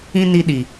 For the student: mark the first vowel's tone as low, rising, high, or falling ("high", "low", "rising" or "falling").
high